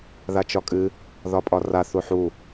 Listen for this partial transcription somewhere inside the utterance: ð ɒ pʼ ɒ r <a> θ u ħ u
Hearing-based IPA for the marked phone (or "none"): a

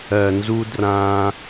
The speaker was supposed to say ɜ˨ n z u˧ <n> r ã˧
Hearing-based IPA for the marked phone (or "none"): d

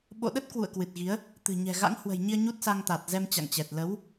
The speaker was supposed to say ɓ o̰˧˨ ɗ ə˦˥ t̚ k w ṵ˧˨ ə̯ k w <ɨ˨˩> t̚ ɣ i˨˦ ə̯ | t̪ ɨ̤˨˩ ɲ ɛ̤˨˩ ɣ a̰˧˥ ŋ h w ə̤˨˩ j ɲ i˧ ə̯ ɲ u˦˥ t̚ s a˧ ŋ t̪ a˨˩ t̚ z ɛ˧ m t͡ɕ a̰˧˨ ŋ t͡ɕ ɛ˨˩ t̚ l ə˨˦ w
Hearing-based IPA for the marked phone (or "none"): ɨ˨˩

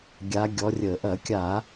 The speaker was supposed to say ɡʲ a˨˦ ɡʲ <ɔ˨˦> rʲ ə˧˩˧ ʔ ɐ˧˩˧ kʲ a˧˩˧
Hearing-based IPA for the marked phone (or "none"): ɔ˨˦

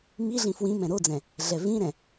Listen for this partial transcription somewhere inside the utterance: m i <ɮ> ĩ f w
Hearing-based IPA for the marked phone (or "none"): ɮ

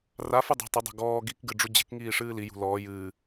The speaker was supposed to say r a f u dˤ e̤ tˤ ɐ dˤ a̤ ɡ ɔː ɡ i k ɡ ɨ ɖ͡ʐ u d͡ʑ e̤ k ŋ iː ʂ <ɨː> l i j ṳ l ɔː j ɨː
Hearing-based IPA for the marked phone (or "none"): ɨː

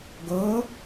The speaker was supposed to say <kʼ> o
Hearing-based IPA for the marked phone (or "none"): ɡ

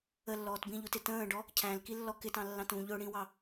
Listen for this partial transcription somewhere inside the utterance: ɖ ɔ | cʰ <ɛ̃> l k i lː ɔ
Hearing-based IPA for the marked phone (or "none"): æ̃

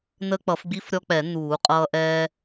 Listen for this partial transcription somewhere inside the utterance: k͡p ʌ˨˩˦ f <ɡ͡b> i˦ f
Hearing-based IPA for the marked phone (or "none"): ɡ͡b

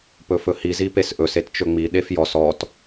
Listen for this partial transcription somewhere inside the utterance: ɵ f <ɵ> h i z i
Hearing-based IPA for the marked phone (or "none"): ɵ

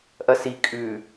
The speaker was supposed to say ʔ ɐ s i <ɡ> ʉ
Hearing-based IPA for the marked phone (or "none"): kʼ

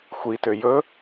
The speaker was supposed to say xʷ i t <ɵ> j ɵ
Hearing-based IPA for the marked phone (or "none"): ø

